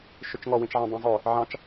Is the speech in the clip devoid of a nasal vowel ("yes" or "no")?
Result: no